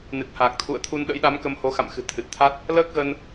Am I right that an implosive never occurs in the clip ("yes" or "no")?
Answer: no